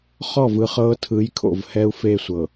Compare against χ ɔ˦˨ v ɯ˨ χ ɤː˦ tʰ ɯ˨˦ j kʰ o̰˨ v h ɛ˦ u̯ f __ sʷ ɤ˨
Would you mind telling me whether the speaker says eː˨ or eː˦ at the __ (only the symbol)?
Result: eː˦